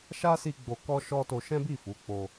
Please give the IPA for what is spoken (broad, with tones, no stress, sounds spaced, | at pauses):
ʃ a˦ s i˧ ɡ͡b o˧ k ɔ˦ ʃ ɔ˦ t o˧ ʃ ɛ̃˦ b i˦˨ f u˨˦ k͡p o˧